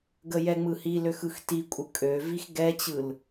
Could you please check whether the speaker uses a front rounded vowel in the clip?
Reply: yes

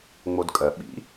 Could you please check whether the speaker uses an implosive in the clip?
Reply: yes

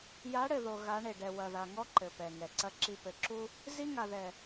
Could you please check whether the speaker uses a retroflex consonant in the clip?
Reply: yes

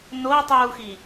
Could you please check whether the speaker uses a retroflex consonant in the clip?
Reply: no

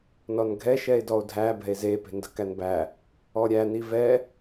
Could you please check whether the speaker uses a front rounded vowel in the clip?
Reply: no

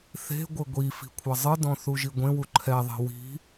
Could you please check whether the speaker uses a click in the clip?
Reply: yes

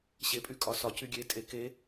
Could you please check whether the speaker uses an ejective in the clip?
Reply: yes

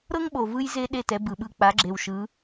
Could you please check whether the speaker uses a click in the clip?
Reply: yes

